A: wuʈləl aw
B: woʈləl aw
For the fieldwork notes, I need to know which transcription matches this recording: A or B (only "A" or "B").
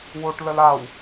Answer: B